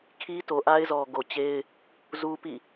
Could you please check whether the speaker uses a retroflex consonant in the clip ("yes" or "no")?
no